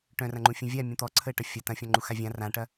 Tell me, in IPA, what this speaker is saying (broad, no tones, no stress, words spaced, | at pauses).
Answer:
ʈœ̃rɐ̃ŋ͡ǃũfʲũ vʲa mʲũt̪ɔǀʰəːʈɐ fʲɐ tɐ̃fʲɔ̃ŋ͡ǃu xavʲã rãʈɐ